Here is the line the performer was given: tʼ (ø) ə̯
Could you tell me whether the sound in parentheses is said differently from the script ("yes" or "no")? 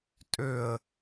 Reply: no